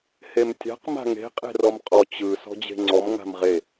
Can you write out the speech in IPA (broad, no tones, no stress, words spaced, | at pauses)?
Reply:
hemtʲa̤q ma̤ŋe̤ qʼe̤rɔmqʼɔ t͡ɕɯ sɔ̤d͡ʑe̤ŋ͡ǀɔm ŋa̤mʁe